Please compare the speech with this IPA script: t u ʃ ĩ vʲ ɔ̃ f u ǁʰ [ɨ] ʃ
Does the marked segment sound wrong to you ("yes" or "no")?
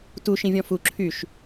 yes